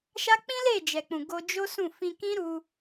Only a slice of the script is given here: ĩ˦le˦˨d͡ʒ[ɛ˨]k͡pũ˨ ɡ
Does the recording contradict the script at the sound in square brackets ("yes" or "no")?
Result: no